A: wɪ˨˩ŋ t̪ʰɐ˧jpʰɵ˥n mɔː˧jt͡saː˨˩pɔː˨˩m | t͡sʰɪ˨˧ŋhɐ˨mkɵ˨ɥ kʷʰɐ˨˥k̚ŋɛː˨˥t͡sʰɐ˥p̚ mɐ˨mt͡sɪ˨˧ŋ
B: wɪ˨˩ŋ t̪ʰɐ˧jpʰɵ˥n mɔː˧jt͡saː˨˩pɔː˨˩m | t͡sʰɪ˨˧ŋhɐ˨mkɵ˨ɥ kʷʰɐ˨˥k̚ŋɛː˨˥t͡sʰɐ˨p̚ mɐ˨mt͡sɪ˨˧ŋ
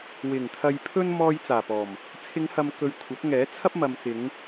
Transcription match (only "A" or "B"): A